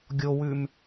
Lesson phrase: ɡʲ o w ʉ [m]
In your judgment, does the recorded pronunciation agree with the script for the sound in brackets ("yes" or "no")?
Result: yes